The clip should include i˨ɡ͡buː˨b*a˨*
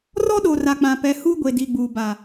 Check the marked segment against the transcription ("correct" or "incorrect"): correct